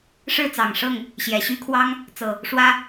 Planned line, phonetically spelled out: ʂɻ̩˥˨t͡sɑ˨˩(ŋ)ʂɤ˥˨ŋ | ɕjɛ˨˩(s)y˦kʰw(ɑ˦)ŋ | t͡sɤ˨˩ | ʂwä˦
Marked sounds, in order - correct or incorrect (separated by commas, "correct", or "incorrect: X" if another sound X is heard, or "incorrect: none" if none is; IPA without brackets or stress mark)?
correct, incorrect: ɕ, correct